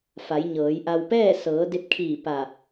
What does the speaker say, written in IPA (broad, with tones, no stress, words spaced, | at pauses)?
fa˩˧jɲɤː˩˧jʔa˧w pɛː˥˨sɤː˩˧ de˧p̚kʰiː˧˩ pa˧˩